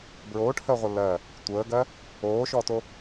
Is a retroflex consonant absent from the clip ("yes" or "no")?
no